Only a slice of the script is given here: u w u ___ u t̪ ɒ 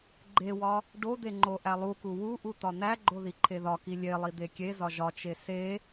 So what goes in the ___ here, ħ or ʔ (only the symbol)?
ʔ